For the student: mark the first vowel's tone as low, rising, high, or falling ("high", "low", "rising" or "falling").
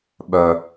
high